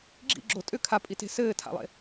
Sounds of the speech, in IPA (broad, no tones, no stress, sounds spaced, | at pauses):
ɡ͡ǁ ḭ ɡ͡ǁ o tʼ ʏ kʰ a pʼ i t e̤ s ɘː tʰ a̰ lˠ ḛ